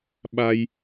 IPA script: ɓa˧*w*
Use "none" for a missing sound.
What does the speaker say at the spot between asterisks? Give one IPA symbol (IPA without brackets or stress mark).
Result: j